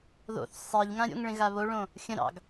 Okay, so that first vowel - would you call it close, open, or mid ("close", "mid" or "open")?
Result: mid